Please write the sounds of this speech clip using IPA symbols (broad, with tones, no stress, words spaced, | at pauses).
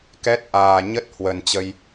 kɛ˦˥t̚ʔaː˨˩ ɲə˦˥t̚ hwə˨˩nt͡ɕə˧j